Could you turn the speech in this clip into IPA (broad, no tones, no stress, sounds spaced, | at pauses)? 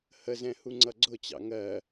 h ə z ɛ̃ h u ŋ͡ǀ ʌ ɡ͡ǀ ʊ t͡ɕ ɑ̰ ŋ ɜ